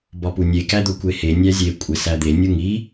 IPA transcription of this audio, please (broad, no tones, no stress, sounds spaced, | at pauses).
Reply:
b ɒ p u nʲ e k æ d̪ o kʷ e h e nʲ æ zʲ e kʷʼ e s æ d̪ e nʲ u ŋ i